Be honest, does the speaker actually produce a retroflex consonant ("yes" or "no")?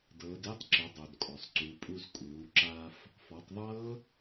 no